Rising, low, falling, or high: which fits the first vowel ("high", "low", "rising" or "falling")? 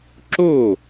falling